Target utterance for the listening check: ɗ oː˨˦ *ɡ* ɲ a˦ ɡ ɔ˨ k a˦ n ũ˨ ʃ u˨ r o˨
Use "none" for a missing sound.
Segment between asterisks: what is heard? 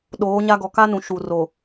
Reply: none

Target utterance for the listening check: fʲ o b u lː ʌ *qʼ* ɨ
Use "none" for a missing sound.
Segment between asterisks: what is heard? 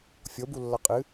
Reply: qʼ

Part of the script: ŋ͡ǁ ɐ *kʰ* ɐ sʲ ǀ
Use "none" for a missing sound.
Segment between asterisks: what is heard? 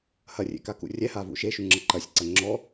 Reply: ǃ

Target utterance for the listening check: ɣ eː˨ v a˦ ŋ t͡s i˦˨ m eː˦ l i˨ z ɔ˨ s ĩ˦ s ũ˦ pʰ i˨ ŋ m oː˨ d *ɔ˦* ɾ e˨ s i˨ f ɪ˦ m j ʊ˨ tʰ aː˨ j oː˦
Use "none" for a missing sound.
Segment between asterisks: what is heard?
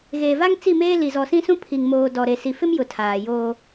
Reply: ɔ˨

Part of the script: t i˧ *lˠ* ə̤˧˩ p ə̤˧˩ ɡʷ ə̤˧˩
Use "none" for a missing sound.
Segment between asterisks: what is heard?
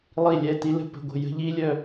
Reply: l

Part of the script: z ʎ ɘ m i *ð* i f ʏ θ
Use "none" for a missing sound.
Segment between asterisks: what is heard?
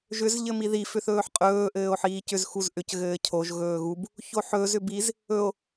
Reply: ð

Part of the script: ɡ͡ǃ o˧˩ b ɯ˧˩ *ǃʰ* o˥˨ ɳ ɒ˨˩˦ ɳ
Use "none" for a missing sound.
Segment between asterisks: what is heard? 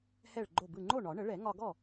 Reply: ŋ͡ǃ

